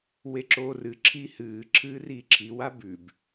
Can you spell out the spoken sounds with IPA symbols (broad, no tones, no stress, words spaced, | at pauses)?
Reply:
weǁoːrɨ ǁʰihɨː ǁʰɨːriːǁʰi wabʉb